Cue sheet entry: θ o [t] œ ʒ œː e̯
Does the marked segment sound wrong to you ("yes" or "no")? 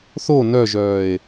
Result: yes